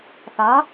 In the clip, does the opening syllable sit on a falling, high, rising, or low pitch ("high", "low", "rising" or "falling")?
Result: rising